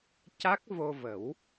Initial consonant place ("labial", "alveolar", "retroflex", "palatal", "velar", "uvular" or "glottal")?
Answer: palatal